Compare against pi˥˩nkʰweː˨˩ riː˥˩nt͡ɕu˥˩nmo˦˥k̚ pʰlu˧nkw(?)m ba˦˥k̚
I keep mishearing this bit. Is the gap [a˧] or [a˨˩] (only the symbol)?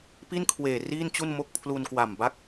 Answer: a˨˩